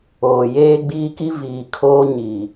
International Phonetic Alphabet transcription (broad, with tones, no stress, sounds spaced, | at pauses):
oː˨ j eː˦ ɡ͡b iː˦ k i˦ v iː˨ kʰ oː˦ ɲ i˨